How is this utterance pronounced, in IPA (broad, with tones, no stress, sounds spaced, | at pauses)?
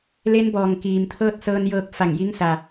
l e˧˥ n b ɔː˩ ŋ k iː˩ m t̪ʰ ɤː˥˨ t̚ s ɤː˧ n j ɤː˧ k̚ f a˧˩ ŋ j i˧˥ ŋ s a˩